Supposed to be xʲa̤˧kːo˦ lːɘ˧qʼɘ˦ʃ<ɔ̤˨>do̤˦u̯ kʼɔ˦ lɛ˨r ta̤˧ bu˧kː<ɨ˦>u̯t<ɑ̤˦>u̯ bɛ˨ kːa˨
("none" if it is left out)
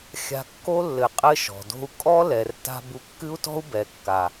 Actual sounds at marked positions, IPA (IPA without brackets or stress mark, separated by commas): ɔ̤˨, ɨ˦, ɔ̤˦